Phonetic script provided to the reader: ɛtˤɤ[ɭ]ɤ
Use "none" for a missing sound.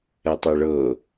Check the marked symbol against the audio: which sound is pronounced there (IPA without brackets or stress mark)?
ɭ